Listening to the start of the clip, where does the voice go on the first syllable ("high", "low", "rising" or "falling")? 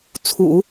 low